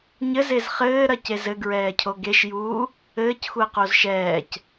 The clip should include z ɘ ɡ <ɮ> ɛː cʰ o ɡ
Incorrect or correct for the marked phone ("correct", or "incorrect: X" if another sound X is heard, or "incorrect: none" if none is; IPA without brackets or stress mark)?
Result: incorrect: ɹ